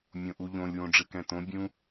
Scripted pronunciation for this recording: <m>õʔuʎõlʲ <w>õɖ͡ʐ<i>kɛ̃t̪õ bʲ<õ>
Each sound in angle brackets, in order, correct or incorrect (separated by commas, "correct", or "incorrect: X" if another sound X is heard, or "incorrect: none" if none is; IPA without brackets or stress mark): incorrect: mʲ, correct, incorrect: ɨ, incorrect: ũ